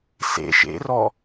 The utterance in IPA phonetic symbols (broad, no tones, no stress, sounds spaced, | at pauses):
s ḛ ʃ ḛ r ɔ